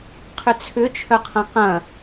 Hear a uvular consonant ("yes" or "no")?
yes